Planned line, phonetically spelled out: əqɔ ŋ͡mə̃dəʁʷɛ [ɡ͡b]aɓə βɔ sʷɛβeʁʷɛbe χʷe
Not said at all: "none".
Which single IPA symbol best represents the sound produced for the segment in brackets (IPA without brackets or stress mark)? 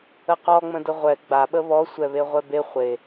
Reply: ɡ͡b